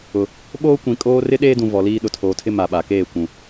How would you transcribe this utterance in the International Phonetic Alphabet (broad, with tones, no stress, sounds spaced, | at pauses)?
ʊ˨ | ɓ oː˦ kʷ ĩ˨ kʼ oː˦ r ɪ˦ ɗ eː˦ d ũ˨ v ɔ˨ l iː˦ ɗ ʊ˨ tʰ oː˨ tʰ ɪ˦ m a˨ ɓ a˨ k eː˦˨ kʷ ũ˨